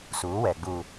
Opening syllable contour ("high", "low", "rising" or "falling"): rising